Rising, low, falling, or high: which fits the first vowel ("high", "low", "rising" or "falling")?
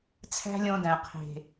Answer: high